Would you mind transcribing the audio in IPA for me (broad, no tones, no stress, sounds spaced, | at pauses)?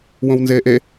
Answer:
w õ w n z eː ʔ e